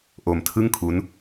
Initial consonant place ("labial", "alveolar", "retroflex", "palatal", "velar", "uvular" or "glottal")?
glottal